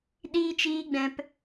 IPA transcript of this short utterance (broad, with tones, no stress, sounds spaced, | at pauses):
ɗ iː˧ t͡ʃ iː˧ ɡ͡b ɛ̃˧ p